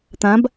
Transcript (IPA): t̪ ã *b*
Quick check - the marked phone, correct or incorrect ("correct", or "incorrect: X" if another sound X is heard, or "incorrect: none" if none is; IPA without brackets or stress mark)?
correct